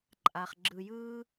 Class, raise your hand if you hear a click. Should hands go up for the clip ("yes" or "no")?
yes